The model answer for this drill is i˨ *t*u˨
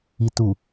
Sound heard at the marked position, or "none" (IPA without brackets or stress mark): t